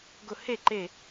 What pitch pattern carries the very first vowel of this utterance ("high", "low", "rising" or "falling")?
falling